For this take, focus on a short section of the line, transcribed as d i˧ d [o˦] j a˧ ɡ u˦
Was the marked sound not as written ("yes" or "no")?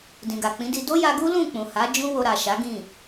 no